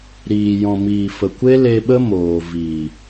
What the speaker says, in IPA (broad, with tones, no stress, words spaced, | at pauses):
ɾiː˨jɔ̃˨miː˨fə˨ kʷe˦le˧ɓə˦ moː˨vi˨